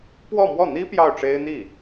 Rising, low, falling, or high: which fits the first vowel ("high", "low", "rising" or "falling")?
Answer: falling